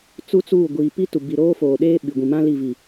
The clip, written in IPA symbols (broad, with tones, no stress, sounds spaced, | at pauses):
t͡s u˦ t͡s uː˦˨ ɡʷ iː˨ p i˦ t u˨ b i˨ ɾ oː˦ f oː˨ ɗ eː˦ ɓ i˨ ɡʷ ĩ˨ m ã˦ l i˦˨ v i˨